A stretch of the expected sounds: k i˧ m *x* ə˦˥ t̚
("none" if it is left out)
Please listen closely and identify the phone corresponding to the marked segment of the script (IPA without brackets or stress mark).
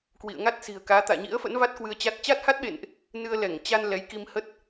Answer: h